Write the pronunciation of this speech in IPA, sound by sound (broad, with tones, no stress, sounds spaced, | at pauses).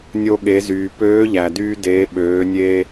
nʲ o˧ ɠ e˩˧ z yː˩ p øː˧˥ ʎ æ˩ d yː˧ d eː˩˧ ɓ øː˩˧ nʲ e˧